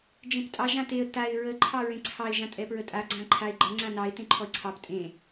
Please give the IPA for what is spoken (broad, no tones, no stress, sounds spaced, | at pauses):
d͡ʒ ẽ p tʼ ɑ ʒ ã t e ə̯ t a ɪ̯ ɹ ə ǃʰ ɑ ɹ ẽ ǀʰ ɑ ɪ̯ ʒ ã tʼ ɛ p ɹ ə tʼ a ɡ͡ǀ ã ǃʰ a ɪ̯ ɡ͡ǃ ə ŋ͡ǀ ã n ɑ ɪ̯ t ẽ ǃʰ ɔ ɪ̯ ǀʰ ɑ p tʼ ẽ